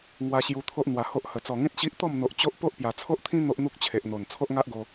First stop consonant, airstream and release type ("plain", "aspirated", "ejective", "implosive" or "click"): aspirated